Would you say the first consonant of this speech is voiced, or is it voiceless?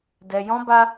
voiced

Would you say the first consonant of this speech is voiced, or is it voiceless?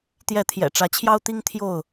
voiceless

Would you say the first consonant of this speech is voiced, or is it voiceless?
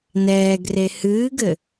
voiced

